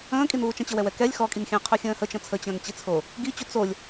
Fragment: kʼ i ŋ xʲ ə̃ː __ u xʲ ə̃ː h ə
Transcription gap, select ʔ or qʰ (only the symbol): qʰ